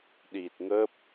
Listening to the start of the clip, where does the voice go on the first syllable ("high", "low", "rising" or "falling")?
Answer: low